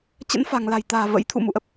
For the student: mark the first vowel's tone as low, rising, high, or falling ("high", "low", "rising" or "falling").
rising